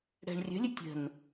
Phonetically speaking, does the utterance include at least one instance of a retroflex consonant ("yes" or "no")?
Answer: yes